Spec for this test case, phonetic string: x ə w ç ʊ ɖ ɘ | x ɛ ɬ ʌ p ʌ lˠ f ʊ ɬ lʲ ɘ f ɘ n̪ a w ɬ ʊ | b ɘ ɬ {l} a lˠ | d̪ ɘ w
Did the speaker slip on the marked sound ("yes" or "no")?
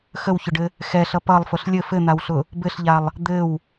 yes